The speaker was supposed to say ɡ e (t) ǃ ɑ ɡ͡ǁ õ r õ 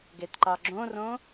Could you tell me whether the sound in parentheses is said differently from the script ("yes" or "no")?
no